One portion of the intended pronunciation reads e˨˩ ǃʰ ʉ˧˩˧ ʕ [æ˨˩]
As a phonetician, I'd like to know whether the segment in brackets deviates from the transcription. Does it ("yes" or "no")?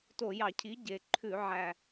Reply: no